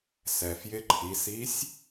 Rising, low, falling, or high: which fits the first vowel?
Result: low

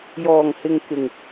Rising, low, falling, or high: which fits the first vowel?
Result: low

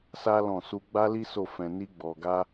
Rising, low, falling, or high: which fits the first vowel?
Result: high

